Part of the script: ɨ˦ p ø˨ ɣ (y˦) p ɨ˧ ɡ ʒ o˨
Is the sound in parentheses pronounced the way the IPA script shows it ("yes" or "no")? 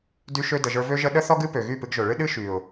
no